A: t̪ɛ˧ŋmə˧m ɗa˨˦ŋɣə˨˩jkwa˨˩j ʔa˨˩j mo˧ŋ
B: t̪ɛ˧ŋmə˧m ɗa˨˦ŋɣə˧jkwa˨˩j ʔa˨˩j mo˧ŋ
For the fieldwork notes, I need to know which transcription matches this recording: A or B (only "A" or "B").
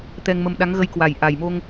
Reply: B